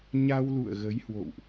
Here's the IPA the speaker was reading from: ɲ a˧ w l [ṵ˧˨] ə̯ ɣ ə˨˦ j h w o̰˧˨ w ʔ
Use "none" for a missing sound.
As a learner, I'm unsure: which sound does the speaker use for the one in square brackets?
ṵ˧˨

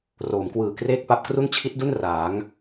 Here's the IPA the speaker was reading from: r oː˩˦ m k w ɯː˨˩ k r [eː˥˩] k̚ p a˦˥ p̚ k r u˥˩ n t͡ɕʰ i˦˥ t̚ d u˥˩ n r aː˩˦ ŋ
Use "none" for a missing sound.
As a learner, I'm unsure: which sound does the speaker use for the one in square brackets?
eː˥˩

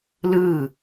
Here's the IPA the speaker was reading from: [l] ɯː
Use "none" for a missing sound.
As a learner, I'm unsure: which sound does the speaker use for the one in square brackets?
l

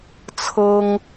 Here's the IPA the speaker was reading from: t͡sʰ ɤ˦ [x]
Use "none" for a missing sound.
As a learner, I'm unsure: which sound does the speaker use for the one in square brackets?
ŋ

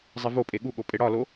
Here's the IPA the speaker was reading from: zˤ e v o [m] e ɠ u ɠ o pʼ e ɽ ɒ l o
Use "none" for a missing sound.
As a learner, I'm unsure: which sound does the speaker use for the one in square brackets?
pʼ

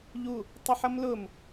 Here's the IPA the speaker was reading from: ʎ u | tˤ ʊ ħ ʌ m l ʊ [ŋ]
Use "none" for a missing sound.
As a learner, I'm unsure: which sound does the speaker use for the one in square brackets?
m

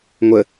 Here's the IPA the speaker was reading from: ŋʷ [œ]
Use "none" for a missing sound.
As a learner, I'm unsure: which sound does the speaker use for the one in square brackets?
ə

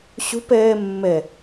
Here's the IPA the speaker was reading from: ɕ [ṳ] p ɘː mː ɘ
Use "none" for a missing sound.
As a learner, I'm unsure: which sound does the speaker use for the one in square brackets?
ṳ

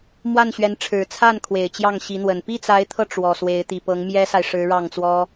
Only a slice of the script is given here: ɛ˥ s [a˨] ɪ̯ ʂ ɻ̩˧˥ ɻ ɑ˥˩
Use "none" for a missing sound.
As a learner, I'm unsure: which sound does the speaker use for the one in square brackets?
a˨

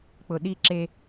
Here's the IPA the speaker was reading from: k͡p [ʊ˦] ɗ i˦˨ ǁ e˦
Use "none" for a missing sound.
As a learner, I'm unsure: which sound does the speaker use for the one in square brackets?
ʊ˨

